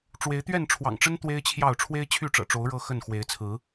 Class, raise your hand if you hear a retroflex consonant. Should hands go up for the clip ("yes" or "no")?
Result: yes